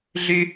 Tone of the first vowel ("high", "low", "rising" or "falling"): high